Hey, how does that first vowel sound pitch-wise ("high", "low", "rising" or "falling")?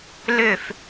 falling